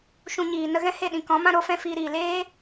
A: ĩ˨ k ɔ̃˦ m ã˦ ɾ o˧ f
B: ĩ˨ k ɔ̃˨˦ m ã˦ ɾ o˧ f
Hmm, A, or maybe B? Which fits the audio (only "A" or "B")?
B